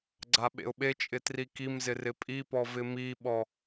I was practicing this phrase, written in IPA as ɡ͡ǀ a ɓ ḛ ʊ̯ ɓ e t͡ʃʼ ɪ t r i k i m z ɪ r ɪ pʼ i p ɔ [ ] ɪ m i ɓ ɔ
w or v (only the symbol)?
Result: v